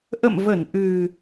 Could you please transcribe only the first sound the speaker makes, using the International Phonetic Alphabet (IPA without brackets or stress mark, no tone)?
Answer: ʔ